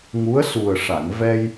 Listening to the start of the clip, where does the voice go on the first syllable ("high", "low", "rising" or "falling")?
rising